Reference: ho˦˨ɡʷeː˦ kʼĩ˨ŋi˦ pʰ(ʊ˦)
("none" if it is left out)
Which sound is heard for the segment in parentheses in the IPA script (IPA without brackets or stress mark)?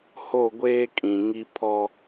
ɔ˦